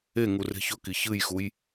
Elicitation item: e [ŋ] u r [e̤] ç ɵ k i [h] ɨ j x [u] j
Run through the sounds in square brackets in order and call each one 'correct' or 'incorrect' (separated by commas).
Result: correct, correct, incorrect, correct